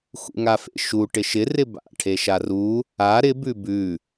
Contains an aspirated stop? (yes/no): yes